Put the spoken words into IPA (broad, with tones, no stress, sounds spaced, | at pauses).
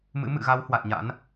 m ɨ̰˧˥ m ɨ̰˧˨ ɣ a˨˦ w h w a˨˩ t̚ ɲ a̰˧˥ n